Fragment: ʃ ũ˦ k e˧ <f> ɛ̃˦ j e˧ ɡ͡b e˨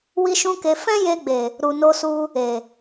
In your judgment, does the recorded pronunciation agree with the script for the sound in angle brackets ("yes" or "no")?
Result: yes